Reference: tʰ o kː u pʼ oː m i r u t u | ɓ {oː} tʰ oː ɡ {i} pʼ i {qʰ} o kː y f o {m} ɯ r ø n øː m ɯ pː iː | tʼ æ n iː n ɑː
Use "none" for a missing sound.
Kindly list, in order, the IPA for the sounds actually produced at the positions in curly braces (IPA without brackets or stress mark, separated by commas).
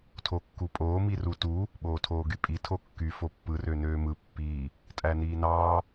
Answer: oː, y, tʰ, pː